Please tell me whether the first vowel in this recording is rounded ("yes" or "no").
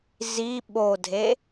no